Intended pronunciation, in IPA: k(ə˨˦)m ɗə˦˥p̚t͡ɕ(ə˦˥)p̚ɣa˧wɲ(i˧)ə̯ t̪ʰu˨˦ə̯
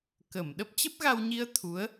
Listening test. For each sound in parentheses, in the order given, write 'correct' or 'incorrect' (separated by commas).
incorrect, correct, correct